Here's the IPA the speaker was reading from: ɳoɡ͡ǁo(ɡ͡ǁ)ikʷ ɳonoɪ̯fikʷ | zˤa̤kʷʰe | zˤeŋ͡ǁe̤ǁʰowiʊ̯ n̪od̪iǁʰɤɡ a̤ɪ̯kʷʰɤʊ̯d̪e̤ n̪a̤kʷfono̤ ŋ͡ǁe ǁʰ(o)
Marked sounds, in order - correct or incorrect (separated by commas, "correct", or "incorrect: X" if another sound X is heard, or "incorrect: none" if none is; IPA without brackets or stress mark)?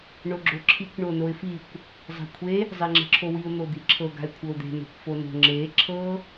incorrect: ǁʰ, incorrect: ɤ